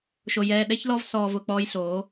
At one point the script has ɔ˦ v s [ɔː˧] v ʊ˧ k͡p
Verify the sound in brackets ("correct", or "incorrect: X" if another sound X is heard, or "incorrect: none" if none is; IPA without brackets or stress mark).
correct